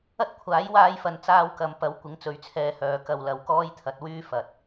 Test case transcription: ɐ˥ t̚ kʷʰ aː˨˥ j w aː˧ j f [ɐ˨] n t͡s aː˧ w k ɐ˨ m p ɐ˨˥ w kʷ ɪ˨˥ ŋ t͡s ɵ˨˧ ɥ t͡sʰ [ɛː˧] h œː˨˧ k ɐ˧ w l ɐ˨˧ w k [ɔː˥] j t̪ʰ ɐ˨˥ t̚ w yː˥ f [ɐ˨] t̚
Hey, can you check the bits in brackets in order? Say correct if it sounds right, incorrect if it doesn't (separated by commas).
correct, correct, correct, correct